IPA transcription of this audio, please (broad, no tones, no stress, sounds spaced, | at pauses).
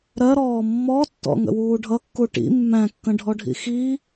ɾ ɜ ɾ ɔː mː ɔ tː ɔ̰ ŋ ə̰ w uː ɖʱ ʌ kː u ʈ ḭ mː æ̃ kː ə̃ ɖʱ ɔ ɖʱ ḭ x i